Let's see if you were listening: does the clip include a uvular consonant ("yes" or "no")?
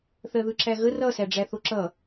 no